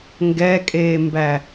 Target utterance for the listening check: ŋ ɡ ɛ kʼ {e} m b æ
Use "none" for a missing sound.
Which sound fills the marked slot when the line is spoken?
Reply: eː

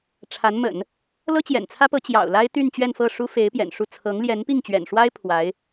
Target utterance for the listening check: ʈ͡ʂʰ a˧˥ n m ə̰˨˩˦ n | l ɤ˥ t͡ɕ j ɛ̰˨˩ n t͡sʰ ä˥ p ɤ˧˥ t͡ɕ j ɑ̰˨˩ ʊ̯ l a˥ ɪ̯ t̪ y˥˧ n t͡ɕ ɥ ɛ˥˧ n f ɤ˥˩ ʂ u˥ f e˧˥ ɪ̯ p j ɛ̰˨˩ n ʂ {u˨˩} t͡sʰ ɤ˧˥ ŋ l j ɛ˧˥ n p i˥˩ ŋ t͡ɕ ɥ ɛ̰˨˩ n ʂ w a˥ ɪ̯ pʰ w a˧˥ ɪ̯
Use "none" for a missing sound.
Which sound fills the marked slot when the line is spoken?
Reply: u˥˩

